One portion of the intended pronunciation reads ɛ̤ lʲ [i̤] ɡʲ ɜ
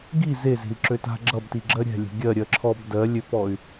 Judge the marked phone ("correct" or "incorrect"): incorrect